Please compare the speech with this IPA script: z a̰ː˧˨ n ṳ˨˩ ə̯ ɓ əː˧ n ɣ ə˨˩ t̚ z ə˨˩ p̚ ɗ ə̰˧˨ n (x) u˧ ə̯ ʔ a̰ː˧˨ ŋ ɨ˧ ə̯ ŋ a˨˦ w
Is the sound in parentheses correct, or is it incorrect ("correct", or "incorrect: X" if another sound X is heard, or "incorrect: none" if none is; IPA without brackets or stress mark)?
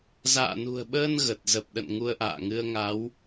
incorrect: ŋ